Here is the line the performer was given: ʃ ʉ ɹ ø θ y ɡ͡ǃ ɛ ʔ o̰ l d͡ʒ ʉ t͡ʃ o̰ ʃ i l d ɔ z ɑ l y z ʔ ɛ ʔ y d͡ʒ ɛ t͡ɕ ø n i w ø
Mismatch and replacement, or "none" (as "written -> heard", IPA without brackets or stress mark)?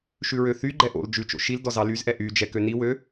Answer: t͡ɕ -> k